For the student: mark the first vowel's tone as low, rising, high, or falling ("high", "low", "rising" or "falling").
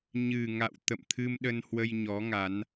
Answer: low